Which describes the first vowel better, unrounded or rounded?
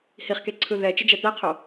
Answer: unrounded